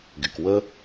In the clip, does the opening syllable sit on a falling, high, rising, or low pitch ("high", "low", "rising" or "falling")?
low